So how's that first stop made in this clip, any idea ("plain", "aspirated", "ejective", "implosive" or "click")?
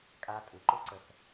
ejective